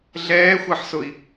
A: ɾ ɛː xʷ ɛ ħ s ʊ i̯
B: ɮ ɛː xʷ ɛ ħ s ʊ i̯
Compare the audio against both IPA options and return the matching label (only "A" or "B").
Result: B